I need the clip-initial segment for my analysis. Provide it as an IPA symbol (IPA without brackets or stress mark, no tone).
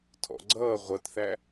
tʰ